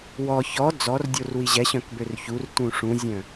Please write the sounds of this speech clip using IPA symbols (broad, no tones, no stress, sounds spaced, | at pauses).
w ɔ ç ɔ d͡z ɔ r dʲ o r w i ʑ ɛ ɕ œ̃ k b ø r ç u r t ũ ʂ ũ zʲ œ̃